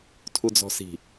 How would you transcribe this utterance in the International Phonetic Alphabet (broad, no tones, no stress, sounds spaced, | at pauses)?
tʰ u d͡z ɔ̤ s i̤